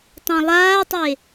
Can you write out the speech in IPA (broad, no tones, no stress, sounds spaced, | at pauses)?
tˤ ã lˠ aː tˤ e